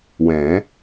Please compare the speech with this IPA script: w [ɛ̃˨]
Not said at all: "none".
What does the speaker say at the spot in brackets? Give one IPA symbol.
ɛ̃˨˩˦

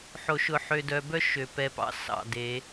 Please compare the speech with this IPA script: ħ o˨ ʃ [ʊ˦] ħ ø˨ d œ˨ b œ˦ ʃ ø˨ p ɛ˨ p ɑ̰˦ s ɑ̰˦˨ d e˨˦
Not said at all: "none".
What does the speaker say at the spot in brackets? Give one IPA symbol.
ʊ˨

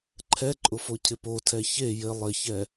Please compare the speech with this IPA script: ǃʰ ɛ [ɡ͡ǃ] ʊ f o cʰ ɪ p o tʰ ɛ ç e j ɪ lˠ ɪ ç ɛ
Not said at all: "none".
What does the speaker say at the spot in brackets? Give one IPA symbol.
ǃʼ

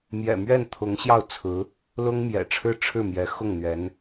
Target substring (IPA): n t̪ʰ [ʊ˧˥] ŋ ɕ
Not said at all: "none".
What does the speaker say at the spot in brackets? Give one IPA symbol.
ʊ˧˥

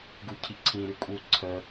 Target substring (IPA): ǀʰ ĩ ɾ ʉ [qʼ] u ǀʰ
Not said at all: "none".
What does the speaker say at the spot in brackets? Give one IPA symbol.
kʼ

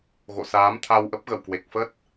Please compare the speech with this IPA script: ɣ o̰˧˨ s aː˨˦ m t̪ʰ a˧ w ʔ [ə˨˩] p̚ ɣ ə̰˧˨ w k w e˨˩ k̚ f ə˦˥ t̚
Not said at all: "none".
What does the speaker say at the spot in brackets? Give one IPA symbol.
ə˦˥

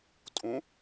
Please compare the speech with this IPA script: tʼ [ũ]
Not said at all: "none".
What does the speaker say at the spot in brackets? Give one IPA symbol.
ũ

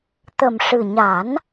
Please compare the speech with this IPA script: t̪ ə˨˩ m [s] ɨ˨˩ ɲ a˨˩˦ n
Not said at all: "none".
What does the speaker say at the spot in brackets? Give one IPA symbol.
ʂ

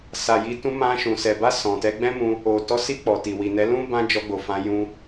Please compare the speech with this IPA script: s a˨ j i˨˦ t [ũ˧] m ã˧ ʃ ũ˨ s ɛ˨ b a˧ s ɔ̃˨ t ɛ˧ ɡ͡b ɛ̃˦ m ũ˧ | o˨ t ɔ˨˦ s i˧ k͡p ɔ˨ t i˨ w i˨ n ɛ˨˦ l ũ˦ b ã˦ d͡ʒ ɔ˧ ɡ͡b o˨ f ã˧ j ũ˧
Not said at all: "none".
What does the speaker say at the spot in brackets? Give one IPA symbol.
ũ˧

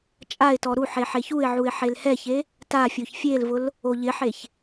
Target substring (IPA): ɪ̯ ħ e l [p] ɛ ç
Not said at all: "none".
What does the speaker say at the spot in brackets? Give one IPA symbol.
h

